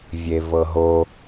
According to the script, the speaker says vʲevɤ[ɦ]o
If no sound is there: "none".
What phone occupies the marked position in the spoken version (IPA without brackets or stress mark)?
ɦ